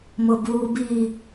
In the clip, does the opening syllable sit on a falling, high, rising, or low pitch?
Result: low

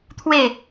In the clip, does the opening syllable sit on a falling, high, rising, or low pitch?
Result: falling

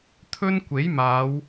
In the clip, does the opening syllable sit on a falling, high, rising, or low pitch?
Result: high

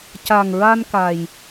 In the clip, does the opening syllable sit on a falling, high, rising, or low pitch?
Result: low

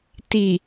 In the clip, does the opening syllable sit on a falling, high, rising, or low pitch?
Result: low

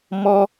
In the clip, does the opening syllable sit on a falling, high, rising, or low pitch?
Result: high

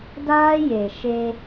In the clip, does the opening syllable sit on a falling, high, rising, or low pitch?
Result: high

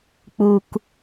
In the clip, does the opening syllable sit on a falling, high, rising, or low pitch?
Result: low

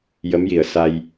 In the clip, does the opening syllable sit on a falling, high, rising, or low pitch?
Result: rising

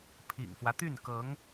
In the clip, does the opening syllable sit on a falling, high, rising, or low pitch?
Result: low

